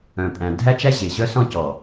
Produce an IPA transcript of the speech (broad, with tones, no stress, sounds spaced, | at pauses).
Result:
œ̃˨ pʼ æ̃˨ dʱ æ˦ t͡ʃ æ˦ ʑ e˨ ʑ œ˦ s ɔ̃˦ c ɔ˨